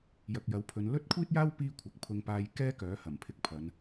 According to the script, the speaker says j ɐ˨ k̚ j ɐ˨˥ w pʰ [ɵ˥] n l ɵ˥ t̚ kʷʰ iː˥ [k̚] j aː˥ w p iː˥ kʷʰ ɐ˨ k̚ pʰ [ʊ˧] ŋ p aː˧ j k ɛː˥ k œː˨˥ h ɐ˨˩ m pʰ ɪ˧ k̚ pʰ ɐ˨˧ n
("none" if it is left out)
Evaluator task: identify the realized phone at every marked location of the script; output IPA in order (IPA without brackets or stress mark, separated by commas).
ɵ˨˧, t̚, ʊ˧